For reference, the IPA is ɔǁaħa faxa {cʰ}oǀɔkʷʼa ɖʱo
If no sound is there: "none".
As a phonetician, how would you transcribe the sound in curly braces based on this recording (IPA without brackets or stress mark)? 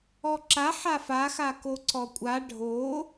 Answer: k